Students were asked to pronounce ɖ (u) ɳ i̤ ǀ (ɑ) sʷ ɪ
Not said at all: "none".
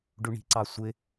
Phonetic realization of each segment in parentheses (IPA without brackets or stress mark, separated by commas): u, ɑ